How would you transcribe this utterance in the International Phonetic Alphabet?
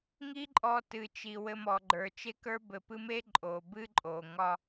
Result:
ŋ i˦ ǃʼ ɔ˨ t ɨ˩ t͡ʃ i˩ w ɘ˨ m ɔ˩ ɡ͡ǃ ə˞˩ t͡ʃ e˦ k ə˞˦ b ɘ˨ p ɨ˦ m e˥ ǃʼ o˩ b ɨ˥ ǃʼ o˩ ŋ ɒ˦

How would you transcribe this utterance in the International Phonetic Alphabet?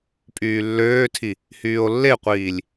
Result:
pʼ yː lː øː tʰ i | h yː o̯ lː e qʷ iː lʲ

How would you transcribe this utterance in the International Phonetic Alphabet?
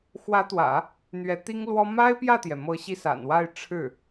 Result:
x w ä˧˥ t̪ w ä̰˨˩˦ | n̪ ɥ ɛ˧˥ t̪ i˥ ŋ l w ɔ˥ m a˥ ɪ̯ p j ä˥˩ t̪ j ɛ˩ m ɤ˧˥ ɕ i˧ s a̰˨˩ n w a˥˧ ɪ̯ ʈ͡ʂʰ ɻ̩˥˩

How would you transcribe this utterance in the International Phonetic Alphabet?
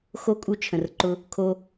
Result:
x o˦ kʼ u˦ t͡ʃʰ ə̃˨ r ǃ ʊ˦ | kʰ o˦

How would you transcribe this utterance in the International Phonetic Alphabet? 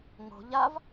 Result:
ŋ o̤ ʎ a v

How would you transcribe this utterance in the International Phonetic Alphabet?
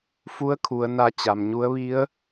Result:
f u˧˥ ə̯ kʰ u˩˧ ə̯ n a˧ t͡ɕ a˩ m ɲ u˧˥ ə̯ ʋ i˧˥ ə̯

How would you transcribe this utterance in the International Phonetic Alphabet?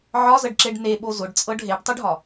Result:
ʕ ɒ z ə ɖ ǁ e ɖ n e ɓ o z ʊ ɖ t͡sʼ ɤ ɖ ɦ e ɖ tˤ ʊ ɖ ɦ ɒ

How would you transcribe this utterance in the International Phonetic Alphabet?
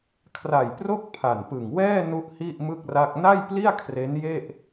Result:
kʰ r a˨˩ j p r o˥˩ k̚ pʰ a˨˩ n p ɯ˨˩ ŋ w ɛː˥˩ n u˥˩ ʔ h i˥˩ ʔ m ɯ˥˩ k̚ r a˥˩ k̚ n a˥˩ j p l i˥˩ a̯ kʰ r e˦˥ n j e˥˩ ʔ

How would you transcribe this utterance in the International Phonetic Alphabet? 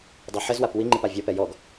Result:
dˤ u ħ ɘ z w a p w i ŋ͡ǃ i p a vʲ ɔ p ɛ j ɔ ɡ

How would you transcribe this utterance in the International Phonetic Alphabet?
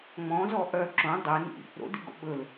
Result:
ŋ͡m ɔ̃ z ɔ ʔ œ ǁ õ dˤ e n ḭ | ɾ o̰ d ḭ ɡ o̰ ɓ ɵ l

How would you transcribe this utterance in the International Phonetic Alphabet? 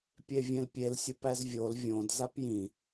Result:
pʲ e vʲ ẽ l pʲ e l sʲ u p æ z vʲ o l vʲ õ d z a p j ĩ

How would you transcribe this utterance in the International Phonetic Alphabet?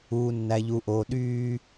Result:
uː˨ nː æ˨ ʎ u˨ ʔ oː˨ ɗ yː˦

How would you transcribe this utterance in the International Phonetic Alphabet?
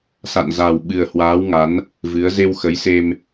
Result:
s a̰˧˨ n z a˨˩ w ɓ ɨ˨˩ ə̯ h w aː˨˦ w ŋ a˨˦ n | v ɨ˨˦ ə̯ z e˧ w x ə˨˦ j s e˧ m

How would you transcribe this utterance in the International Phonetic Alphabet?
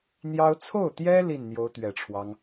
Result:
n̪ j ɑ˥ ʊ̯ t͡sʰ o˥˩ ʊ̯ t̪ j ɛ˥ l i˥˩ n n̪ j o˧˥ ʊ̯ t̪ ɥ ɛ˨˩ ʈ͡ʂʰ w ɑ˦ ŋ

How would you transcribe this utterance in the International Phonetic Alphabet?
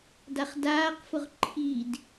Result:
d a χ d aː q f ʊ ʁ ǃʰ i d

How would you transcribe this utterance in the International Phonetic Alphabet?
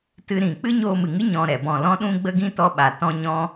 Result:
t ɨ˧ ɾ ĩ˨ k͡p ɨ˦ ɲ oː˧ m ɨ˨ ŋ ɨ˦ ɲ ɔ̃˧ ɾ ɛ˨ b ɔ̃˦˨ l ɔ̃˦ ɗ ũ˦ ɡ͡b ə˦ ɡ ĩ˦ t ɔ˦ ɓ a˨ t ɔ̃˦ ɲ ɔ̃˦

